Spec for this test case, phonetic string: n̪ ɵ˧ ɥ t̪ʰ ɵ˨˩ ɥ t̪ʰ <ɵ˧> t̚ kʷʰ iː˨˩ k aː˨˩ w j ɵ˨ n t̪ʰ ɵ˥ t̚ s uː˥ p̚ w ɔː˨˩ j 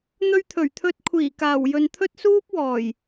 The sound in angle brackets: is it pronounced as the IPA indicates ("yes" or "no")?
yes